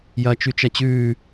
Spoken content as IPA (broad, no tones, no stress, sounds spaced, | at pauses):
j ɐː t͡ʃ ʉ t͡ʃ ɐ t͡ɕ ʉː